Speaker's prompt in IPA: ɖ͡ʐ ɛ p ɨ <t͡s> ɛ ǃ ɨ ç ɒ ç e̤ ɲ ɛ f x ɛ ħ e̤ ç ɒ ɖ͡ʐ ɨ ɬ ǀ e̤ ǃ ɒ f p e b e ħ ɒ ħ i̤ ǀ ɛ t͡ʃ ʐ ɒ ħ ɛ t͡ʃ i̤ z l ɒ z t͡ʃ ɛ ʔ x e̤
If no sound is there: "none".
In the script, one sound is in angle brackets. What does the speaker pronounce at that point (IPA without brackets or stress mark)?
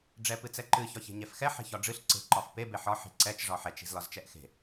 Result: t͡s